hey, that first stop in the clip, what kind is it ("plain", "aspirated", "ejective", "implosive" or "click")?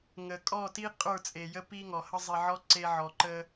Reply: ejective